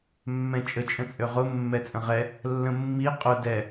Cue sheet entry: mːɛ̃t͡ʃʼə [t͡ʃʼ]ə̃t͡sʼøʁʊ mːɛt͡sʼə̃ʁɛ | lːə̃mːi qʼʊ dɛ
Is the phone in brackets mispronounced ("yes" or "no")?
no